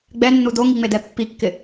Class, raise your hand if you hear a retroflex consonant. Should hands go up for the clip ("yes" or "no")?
no